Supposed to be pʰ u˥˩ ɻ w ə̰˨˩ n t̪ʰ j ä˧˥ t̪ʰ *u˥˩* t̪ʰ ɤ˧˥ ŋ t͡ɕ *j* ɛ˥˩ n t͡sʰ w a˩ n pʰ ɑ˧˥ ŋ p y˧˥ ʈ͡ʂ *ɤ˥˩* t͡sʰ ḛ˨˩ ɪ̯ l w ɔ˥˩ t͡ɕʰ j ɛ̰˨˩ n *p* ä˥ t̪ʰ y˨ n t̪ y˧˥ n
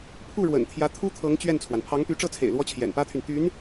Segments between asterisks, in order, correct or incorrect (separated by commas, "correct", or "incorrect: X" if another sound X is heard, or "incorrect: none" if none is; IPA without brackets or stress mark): incorrect: u˥, incorrect: ɥ, correct, correct